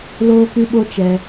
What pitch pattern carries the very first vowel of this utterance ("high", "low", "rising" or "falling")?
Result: high